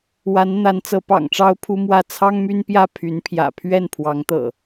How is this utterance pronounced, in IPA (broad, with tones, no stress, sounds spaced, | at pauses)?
w a˨˦ n n̪ a˨˦ n t͡s ɤ˨˦ p ɑ̰˨˩ ŋ ʈ͡ʂ ɑ˦ ʊ̯ pʰ u˦ m w ä˥˨ t͡sʰ ɑ˦ ŋ m y˦ n p j ä˥˨ pʰ y˨˦ n pʰ j ä̰˨˩ pʰ ɥ ɛ˥˨ n pʰ w ɑ˨˦ ŋ t̪ ɤ̰˨˩